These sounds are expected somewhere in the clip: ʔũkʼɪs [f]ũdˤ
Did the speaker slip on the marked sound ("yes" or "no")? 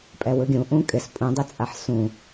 yes